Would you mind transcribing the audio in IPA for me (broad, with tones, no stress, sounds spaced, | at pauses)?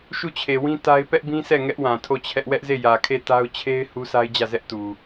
ʃ u˦˨ t͡ɕʰ e˨ w ĩ˦ t a˦ ɪ̯ p ɛ˦ ʔ b ĩ˦ s ɛ˦˨ ŋ ɛ˦ ʔ w ã˨ tʰ o˦˨ t͡ɕʰ ɛ˦ ʔ w ɛ˦ ʔ z e˦˨ j ä˨ kʰ e˦˨ t a˦ ʊ̯ t͡ɕʰ e˦ ɪ̯ h u˦ sʰ a˦ ɪ̯ d͡ʑ ä˦˨ z ɛ˦ ʔ t u˨